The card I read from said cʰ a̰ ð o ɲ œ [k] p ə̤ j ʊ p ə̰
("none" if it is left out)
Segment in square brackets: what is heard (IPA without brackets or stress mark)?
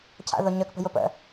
k